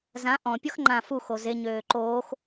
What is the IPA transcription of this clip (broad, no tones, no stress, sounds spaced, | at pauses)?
z ã ʔ ɔ̃ pʲ ɔ x ŋ͡ǃ ã f u x o z e ɲ øː ǃ oː x